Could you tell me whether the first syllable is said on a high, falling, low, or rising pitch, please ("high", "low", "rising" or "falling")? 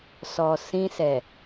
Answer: low